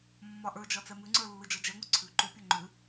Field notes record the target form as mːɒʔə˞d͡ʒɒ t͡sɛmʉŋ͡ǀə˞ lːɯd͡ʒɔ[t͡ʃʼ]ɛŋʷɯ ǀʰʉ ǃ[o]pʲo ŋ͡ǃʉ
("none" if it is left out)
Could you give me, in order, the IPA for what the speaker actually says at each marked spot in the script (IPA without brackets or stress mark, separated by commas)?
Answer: d͡ʒ, u